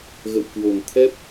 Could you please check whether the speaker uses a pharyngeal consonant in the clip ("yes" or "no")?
no